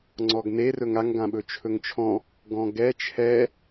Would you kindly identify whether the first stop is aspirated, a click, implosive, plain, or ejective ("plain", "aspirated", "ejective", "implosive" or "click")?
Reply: click